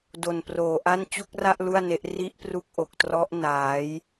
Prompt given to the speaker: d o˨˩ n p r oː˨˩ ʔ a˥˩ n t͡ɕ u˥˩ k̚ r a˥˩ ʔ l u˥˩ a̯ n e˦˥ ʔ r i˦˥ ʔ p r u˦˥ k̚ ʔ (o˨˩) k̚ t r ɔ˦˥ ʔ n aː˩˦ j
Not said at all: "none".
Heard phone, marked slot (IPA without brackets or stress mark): o˨˩